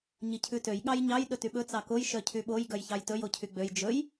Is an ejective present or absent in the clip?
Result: absent